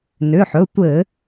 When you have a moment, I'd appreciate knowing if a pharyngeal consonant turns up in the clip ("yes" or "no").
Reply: yes